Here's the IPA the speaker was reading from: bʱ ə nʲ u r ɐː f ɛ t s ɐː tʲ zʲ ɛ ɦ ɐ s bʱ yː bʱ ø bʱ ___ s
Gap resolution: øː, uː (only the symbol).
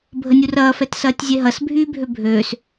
øː